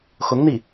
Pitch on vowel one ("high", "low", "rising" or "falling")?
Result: rising